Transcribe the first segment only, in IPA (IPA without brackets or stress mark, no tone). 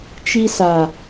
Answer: t͡ʃ